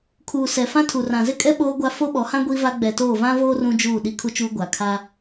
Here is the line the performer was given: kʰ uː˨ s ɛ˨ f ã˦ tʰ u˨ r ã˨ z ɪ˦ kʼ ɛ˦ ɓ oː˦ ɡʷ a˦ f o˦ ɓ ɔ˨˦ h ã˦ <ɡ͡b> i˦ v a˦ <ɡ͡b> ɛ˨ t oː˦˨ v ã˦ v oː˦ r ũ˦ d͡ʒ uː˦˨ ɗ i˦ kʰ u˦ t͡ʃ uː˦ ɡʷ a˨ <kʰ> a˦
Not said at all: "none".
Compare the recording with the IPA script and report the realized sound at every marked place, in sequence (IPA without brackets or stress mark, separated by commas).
ɡʷ, ɡ͡b, kʰ